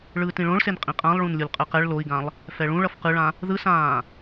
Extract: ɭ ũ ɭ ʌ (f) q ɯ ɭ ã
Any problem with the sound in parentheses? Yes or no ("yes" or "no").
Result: no